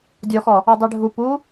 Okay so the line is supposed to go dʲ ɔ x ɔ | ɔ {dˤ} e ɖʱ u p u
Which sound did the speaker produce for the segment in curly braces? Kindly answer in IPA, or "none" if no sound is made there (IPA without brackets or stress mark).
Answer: dˤ